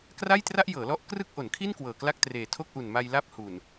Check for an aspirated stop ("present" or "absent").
present